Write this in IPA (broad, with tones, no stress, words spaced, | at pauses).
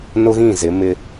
nʊ˦ɣĩ˦˨ zɪ˨˦mɪ˦